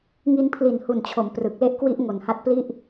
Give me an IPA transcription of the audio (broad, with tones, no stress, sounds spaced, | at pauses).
ŋ i˧ n pʰ l i˨˩ n h u˨˩ n t͡ɕʰ o˩˦ m p r ɯ˨˩ k̚ l e˦˥ ʔ k w i˦˥ ʔ ŋ o˨˩ n h a˦˥ t̚ p l i˥˩ ʔ